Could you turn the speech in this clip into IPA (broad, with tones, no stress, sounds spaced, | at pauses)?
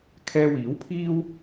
kʰ ɛː˧ w iː˨˥ w pʰ iː˥ w